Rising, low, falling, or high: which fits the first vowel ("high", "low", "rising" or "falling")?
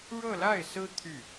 falling